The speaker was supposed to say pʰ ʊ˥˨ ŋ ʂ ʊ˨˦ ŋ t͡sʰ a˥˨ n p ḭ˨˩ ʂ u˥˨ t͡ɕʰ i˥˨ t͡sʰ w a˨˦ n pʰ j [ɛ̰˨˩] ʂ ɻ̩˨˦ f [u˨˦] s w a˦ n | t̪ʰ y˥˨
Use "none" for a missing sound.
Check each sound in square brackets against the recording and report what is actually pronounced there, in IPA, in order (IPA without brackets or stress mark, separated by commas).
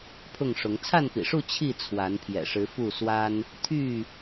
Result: ɛ̰˨˩, u˥˨